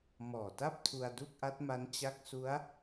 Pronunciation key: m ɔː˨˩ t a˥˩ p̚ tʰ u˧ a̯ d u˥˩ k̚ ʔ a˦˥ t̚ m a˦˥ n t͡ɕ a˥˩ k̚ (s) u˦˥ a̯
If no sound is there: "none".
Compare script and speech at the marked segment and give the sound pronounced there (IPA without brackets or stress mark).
s